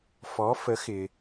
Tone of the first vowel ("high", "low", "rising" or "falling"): rising